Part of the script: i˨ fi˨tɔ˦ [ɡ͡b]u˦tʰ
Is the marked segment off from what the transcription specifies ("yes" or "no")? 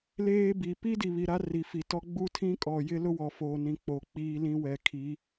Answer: no